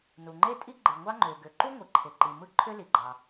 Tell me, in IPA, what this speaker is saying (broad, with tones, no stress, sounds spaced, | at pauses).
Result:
n u˩ ŋ͡ǃ e˥ tʼ i˥ ɡ͡ǃ ɯ˩ ŋʷ ɑ˥ ŋ͡ǃ ø˩ ɡ ø˩ ǃ u˥ ŋʷ i˩ ǃʰ e˩ ǃ i˩ m ɯ˥ ǃʰ ø˥ l i˩ ɡ͡ǃ ɑ˩